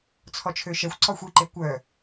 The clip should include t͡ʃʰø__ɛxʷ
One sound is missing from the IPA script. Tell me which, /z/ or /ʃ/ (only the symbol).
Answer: ʃ